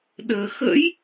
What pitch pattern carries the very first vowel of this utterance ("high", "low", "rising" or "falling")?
low